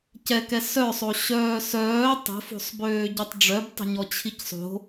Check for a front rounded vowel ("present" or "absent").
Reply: present